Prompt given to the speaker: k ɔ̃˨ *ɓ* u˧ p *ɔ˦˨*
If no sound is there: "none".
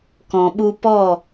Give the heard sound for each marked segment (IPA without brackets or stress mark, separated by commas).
ɓ, ɔ˦˨